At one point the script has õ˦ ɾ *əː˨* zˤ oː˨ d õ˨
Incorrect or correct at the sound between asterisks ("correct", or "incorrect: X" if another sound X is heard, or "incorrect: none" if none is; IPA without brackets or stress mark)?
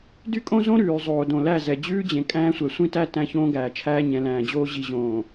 incorrect: ʉː˨